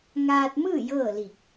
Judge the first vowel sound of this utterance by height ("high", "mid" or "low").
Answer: low